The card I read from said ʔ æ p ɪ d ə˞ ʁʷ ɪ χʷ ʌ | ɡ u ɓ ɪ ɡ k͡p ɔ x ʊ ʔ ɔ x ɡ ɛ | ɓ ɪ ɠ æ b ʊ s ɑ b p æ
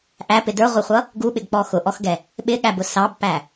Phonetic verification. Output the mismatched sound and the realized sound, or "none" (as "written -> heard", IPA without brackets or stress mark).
none